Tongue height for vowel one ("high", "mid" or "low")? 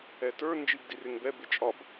mid